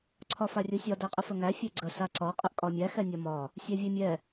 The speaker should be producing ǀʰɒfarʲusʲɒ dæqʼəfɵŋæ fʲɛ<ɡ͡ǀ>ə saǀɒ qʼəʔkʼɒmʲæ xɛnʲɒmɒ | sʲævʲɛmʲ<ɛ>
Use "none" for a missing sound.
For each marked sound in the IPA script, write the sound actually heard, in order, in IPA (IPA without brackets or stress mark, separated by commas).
ɡ͡ǀ, ɛ